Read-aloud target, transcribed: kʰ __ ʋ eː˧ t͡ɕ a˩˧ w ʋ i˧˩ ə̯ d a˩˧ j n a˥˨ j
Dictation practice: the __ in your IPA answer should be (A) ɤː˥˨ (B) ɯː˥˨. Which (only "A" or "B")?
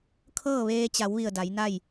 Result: A